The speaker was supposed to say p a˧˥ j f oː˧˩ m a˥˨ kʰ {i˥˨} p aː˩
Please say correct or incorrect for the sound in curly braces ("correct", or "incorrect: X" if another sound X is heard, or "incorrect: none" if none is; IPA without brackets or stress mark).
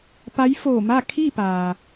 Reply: correct